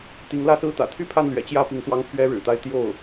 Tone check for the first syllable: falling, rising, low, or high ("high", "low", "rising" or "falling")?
rising